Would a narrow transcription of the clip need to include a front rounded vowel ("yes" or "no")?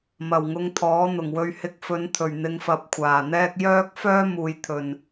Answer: yes